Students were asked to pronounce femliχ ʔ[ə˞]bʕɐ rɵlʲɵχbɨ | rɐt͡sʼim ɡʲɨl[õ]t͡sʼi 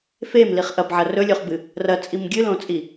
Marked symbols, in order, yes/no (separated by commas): no, yes